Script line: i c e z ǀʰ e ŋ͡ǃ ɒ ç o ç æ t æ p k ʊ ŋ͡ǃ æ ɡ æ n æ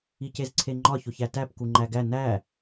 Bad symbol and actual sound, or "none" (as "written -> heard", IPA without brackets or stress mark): ʊ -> u